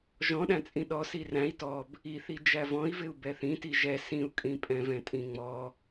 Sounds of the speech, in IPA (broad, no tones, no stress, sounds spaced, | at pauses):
ʒ ɔ̃ ɗ æ̃ t͡sʼ ĩ ɗ ɔ s i r æ̃ i̯ t ɔ b | i θ i d͡ʒ æ v ɔ̃ i̯ v ɪ u̯ b ɛ θ ĩ t i ʒ ɛ s ĩ u̯ kʼ ĩ pʼ ɛ̃ v ɛ̃ tʼ ĩ ŋ͡m ɔ